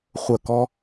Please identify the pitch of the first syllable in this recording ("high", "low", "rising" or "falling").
falling